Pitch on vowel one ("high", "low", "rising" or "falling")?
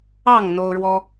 falling